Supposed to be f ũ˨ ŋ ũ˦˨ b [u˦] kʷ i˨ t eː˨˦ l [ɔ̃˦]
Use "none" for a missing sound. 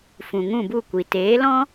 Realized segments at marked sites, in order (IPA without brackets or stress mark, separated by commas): u˦˨, ɔ̃˦